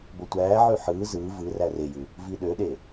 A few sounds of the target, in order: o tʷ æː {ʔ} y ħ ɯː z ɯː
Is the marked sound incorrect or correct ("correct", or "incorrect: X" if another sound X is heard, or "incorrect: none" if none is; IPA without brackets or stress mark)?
incorrect: ʕ